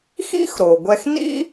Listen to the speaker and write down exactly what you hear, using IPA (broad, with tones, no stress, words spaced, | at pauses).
xḭ˥xɾo˩ɡʷɛ˧xnḭ˥